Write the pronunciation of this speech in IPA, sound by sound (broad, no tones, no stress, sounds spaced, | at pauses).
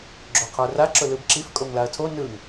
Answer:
ɡ͡ǁ o qʰ ə˞ r a ǁ ʊ l ɯ b ǁ i f kʼ o ŋ l a ɐ̯ tʰ o n ɯ ŋ